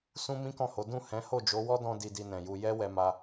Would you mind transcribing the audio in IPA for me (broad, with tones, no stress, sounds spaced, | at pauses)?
s ũ˦ m ĩ˦ k ɔ̃˦˨ h o˨˦ d ũ˦˨ h ɛ̃˨˦ h o˦˨ d͡ʒ o˨˦ w ɔ˦ d ɔ̃˧ d i˧ d i˧ n ɛ̃˨ j u˧ j ɛ˦ w ɛ˧ m a˧